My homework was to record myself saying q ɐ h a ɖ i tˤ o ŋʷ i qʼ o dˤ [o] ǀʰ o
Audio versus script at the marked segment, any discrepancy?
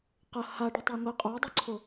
yes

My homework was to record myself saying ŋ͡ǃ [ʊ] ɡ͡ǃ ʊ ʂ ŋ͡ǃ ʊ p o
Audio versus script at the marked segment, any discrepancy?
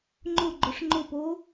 no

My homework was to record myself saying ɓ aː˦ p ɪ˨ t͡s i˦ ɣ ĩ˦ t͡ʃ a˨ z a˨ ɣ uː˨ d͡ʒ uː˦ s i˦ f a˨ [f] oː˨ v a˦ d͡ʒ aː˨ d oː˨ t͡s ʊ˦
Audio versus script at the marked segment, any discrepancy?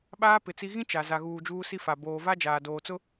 yes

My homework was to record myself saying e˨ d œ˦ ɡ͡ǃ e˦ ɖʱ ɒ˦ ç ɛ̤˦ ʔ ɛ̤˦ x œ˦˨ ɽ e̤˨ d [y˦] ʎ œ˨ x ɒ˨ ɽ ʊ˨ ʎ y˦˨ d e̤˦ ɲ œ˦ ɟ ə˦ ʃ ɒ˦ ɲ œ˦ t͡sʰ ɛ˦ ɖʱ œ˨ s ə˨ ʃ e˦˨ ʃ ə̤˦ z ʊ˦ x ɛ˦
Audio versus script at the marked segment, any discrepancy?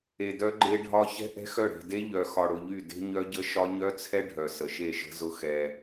yes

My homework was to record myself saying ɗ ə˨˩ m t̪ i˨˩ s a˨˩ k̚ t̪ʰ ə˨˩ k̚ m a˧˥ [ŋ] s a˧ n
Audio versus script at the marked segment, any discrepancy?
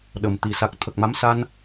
yes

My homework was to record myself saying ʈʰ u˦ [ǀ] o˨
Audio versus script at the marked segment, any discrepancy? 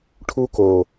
yes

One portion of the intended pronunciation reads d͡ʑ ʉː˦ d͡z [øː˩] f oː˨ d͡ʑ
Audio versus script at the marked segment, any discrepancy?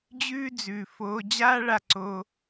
yes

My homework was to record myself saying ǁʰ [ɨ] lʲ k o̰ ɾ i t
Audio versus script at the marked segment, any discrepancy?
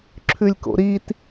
yes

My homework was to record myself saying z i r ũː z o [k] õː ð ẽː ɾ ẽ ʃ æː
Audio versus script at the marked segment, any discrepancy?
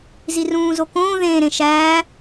no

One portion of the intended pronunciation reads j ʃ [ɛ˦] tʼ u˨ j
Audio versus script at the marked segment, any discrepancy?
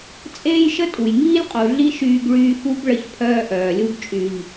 yes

